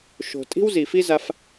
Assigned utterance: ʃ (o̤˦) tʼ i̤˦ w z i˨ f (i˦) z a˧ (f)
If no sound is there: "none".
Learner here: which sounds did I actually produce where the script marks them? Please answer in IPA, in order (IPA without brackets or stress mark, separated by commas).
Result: o̤˨, i˦, f